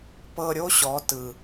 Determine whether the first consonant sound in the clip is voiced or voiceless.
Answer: voiceless